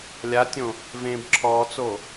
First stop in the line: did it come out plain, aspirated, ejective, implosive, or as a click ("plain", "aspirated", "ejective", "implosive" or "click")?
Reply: plain